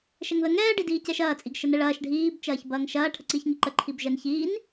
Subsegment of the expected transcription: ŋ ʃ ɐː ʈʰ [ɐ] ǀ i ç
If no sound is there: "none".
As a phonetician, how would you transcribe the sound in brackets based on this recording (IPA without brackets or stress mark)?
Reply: ə